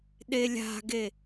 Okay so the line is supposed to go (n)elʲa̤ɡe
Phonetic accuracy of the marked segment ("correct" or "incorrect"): incorrect